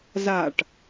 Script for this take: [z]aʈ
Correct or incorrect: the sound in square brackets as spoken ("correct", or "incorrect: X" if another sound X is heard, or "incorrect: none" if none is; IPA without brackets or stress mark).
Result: correct